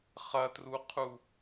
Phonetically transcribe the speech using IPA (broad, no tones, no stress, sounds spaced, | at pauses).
χ ɐ t r u qʰ u